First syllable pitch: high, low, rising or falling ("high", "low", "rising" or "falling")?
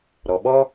low